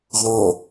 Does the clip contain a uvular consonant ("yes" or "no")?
yes